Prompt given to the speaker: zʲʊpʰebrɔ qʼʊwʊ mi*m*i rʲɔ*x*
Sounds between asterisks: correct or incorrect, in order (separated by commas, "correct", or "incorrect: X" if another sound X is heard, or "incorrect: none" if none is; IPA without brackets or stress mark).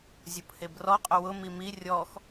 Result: correct, correct